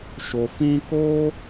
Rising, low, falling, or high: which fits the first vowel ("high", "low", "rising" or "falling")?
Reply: low